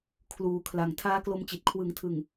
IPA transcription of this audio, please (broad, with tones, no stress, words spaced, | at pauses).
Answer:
kʰluː˨˩ kʰla˨˩ŋ tʰaː˦˥klo˧mt͡ɕi˨˩t̚ kʰwɯ˩˦ŋtʰɯ˨˩ŋ